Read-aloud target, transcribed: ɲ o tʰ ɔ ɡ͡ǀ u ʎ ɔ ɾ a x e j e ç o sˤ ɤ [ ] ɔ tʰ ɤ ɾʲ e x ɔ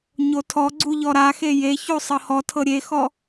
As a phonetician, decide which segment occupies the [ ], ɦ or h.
h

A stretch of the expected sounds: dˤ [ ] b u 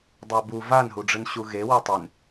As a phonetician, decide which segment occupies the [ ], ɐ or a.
a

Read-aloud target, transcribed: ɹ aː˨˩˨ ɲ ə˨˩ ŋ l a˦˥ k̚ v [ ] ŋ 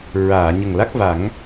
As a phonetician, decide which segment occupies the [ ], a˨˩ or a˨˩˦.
a˨˩˦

